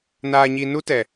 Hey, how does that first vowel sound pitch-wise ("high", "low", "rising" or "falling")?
low